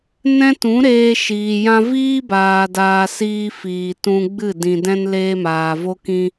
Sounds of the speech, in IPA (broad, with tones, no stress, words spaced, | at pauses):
nɛ̃˦tũ˨˦ɾeː˧ ʃiː˨jã˦ viː˦baː˨daː˨ siː˧ fiː˨tũ˧ ɡ͡bɨ˦˨dĩ˨dɛ̃˦n leː˧maː˨ vo˦kĩ˦